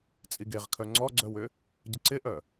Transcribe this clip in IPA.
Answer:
t͡sʼ i ɡ e ʁ kʰ œ ŋ͡ǀ ɔ ɡ͡ǀ œ w ʏ | ɟ ə ǀ ɪ ʔ œ

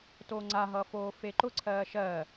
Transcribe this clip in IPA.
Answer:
t oː ŋ͡ǀ a ɦ ʌː f oː f e ǃ ʊ ǀʰ ɜː ʃ ɜ

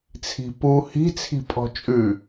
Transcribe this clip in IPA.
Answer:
t͡sʰ i̤ p u h i̤ t͡sʰ i̤ pʼ ɔ̤ t͡ʃʼ ʉ

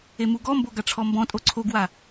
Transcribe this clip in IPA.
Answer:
e m u ɡ ɔ m b o ɡ a ʈ͡ʂʰ ɔ m b ɔ̃ tʼ o ǀʰ o ɡ w a

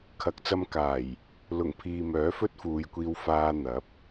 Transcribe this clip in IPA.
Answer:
kʰ ɐ˨ k̚ t͡s ɐ˧ m k aː˨˩ j | l ʊ˨˩ ŋ pʰ iː˨ m œː˨˥ f ɵ˥ t̚ f uː˨ j kʷ iː˧ w f aː˧ n̪ ɐ˨˥ p̚

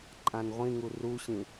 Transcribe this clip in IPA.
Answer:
ǃʼ ã n ʁʷ ĩ ŋ u r u ɕ ĩ

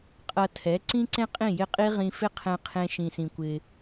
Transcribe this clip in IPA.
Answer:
qʼ ʌ˧ tʰ ɛ˩˥ ǀ ĩ˥ ǀ ẽ˥ qʼ ĩ˥˩ j ɪ˥˩ qʼ i˥ ʁ ĩ˧ f ɪ˥ qʰ ɛ̃˧ qʰ ẽ˧ ʃ ĩ˩ s ĩ˩ kʷ ɪ˩

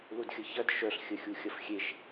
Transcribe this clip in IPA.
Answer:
l u d xʲ ə ç ɐ d ʃ œ ɬ xʲ ə xʲ u xʲ ɐ f xʲ e ʃ

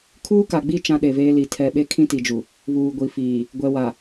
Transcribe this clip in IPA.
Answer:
kʰ uː˦ k a˨ ɡ͡b i˦˨ t͡ʃ ã˦ ɗ e˨ v eː˦ l i˨ tʰ ɛ˨ ɓ e˦ kʰ ĩ˦ t i˨ d͡ʒ u˨ | β uː˨ ɡʷ i˨ f iː˨ | ɡʷ ɛ˨ w a˨

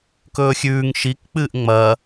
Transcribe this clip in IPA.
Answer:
k ɵː xʲ ʉː ŋ ʃ i k k͡p ɨː ʔ ŋ͡m ɐ

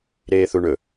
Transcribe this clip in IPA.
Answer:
ɾ eː θ u ɳ ɵ

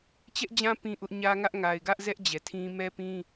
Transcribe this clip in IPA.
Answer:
t͡ɕ ɛ˦ ʔ d͡ʑ ã˦ p ĩ˦ ʔ ʊ˦ ʔ ɲ ä˦ ŋ ä˦ ʔ ŋ a˨ ɪ̯ ɡ ä˦ ʔ z ɛ˦ ʔ d͡ʑ ɛ˨ tʰ ĩ˦ m ɛ˦ p ĩ˦

